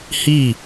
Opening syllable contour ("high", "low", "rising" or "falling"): falling